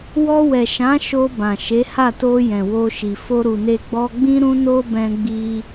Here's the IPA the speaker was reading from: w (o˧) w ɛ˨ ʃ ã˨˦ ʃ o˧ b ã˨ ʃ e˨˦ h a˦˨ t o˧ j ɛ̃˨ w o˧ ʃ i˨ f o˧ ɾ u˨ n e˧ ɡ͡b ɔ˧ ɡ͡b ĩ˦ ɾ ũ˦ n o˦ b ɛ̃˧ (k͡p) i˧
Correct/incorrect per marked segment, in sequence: incorrect, incorrect

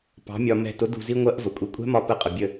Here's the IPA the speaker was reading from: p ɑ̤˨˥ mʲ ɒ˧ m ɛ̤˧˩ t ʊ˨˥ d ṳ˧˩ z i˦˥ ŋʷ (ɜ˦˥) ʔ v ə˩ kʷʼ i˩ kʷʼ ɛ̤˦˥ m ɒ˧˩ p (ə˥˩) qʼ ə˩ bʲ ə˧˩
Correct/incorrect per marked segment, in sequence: correct, incorrect

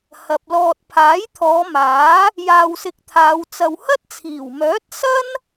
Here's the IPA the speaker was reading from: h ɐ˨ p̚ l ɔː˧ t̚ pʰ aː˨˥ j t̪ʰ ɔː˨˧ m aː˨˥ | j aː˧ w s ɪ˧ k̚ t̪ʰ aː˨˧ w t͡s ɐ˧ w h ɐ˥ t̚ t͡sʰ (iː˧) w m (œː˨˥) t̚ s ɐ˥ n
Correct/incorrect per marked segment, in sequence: incorrect, correct

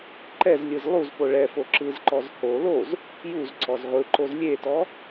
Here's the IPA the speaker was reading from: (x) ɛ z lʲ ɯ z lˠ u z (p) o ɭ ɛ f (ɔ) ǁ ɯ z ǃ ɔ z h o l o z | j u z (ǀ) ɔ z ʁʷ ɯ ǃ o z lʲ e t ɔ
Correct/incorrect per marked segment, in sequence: incorrect, correct, incorrect, correct

